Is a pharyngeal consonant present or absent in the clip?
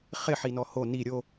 present